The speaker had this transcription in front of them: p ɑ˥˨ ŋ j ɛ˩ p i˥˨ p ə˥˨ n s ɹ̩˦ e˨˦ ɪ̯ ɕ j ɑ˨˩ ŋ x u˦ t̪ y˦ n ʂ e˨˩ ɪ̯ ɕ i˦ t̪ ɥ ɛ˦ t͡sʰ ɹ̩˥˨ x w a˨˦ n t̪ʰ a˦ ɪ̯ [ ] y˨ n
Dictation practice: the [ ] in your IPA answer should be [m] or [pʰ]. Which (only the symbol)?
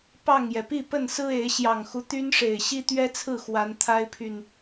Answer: pʰ